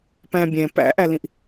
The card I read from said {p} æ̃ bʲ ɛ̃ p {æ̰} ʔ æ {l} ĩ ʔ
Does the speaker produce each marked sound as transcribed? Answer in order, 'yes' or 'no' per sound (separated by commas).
yes, yes, yes